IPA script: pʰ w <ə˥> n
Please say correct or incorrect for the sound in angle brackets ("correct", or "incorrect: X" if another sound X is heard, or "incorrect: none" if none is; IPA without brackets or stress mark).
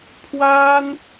incorrect: a˥